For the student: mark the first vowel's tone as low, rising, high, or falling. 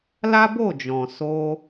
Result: high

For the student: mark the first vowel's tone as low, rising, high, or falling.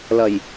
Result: low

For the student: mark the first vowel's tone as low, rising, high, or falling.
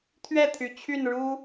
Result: falling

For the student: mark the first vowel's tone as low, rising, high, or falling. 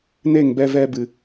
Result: falling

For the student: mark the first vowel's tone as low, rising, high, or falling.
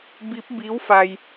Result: rising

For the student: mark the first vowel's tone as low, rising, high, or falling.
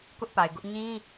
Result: high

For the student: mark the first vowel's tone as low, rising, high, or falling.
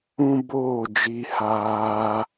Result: high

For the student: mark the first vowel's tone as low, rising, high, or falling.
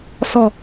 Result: low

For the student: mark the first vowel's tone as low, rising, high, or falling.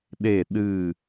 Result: falling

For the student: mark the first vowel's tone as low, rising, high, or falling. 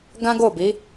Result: high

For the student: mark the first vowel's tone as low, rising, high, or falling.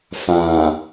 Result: low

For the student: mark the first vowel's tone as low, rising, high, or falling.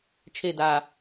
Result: falling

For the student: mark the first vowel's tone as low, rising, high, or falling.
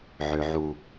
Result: low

